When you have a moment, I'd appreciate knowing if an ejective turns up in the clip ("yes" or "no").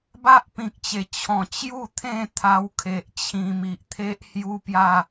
no